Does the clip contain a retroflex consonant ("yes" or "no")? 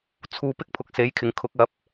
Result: no